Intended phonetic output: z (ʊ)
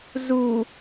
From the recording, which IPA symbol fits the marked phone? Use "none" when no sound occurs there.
u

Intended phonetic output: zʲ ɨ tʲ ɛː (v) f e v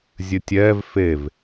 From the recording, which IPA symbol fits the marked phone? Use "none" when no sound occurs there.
v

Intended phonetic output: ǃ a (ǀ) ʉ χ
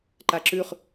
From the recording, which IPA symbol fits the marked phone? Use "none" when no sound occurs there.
ǁ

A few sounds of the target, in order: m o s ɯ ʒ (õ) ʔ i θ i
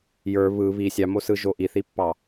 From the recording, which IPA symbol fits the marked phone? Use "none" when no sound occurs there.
o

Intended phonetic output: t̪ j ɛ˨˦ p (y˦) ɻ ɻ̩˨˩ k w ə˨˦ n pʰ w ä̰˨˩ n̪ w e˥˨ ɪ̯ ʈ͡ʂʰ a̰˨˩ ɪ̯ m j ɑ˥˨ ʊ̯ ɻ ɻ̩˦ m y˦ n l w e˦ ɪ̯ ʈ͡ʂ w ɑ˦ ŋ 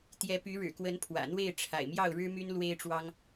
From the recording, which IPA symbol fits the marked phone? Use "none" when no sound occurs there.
y˨˦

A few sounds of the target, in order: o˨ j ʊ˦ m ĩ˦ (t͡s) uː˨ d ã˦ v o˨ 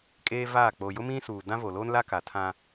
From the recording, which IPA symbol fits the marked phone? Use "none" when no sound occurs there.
s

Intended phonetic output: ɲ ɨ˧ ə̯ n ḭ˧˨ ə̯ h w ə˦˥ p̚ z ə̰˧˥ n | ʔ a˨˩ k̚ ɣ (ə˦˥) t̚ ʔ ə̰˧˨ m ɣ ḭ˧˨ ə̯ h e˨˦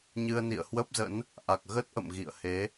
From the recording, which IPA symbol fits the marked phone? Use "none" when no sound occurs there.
ə˦˥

